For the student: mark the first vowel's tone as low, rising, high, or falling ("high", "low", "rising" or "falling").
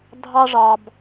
high